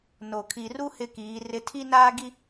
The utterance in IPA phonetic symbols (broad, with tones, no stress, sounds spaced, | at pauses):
n o˨ kʰ i˨ r u˦ h ɪ˦ k iː˨˦ r ɪ˦ tʰ i˦ n aː˦ ɡ i˦